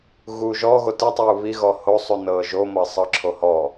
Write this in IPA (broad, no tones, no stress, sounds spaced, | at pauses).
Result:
ɣ uː ʒ ɔ ɣ o t ɯ tˤ uː β i ɣ ɔ h o sˤ u n ɤː ʒ o m ɤ sˤ ɤ ǁʰ o h ɔ